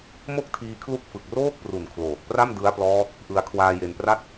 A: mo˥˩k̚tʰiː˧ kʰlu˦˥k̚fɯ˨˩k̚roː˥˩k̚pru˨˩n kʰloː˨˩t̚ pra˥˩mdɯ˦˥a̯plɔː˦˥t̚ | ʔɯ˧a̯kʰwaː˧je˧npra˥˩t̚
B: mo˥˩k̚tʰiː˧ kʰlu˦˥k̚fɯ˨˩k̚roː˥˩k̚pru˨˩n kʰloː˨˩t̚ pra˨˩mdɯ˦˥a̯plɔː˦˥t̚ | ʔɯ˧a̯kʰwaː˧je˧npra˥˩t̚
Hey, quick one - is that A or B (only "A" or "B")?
A